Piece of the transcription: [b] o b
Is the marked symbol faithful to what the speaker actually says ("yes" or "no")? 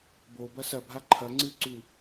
yes